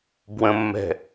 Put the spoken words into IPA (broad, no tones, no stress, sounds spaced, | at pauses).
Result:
b w ə̃ mː ɛ̤